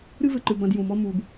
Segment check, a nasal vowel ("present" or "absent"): present